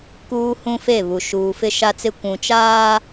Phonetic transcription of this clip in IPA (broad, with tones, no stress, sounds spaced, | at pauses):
k uː˦ h ũ˦ f e˦˨ β u˨ ʃ uː˨ f ɪ˦ ʃ a˦ t͡s ɪ˦ kʷ ũ˨ t͡ʃ aː˦